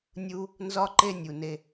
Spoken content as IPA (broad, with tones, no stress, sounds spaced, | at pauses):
nʲ u˦ | n z ɒ˦ ǃ e˦ nʲ u˨ n e˧